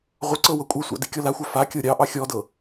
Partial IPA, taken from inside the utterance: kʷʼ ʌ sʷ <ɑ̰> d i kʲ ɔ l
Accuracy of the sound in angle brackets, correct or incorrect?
correct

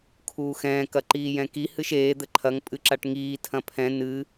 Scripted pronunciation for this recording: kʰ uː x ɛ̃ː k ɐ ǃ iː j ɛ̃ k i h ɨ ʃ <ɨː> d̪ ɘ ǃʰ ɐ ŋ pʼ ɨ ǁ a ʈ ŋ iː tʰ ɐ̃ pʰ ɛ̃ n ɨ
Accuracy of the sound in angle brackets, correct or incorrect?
incorrect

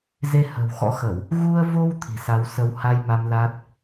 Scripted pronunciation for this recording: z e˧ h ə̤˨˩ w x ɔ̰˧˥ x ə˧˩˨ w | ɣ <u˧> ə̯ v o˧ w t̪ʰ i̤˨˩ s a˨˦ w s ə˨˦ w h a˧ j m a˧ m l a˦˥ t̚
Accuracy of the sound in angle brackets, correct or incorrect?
correct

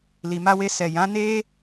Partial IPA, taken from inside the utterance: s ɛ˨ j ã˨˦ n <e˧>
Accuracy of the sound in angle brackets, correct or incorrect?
incorrect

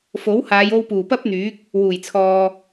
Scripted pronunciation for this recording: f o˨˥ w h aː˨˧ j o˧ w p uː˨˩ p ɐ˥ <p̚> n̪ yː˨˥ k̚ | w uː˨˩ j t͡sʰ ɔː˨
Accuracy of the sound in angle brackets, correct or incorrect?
correct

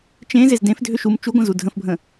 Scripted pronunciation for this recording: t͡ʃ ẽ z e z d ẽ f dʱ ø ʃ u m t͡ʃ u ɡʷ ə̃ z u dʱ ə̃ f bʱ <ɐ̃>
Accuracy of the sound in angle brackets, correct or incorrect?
incorrect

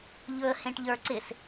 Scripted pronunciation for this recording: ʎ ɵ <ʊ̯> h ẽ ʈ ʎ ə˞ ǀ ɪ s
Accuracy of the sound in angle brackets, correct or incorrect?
incorrect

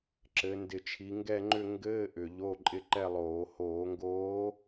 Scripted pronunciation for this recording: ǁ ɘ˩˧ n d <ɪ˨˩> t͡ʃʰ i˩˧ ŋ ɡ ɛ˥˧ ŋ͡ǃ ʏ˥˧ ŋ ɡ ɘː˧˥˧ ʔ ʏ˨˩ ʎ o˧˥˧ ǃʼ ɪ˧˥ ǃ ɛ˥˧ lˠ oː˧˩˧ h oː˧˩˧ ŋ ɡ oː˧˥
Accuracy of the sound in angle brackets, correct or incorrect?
correct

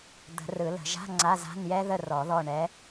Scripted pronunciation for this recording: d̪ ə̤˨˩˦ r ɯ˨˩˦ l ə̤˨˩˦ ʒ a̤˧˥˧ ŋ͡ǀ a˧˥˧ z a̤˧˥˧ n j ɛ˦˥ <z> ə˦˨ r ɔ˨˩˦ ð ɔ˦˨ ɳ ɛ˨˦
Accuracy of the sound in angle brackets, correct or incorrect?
incorrect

